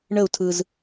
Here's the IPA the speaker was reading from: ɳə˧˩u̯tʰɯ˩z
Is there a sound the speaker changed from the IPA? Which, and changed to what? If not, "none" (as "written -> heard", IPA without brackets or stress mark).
none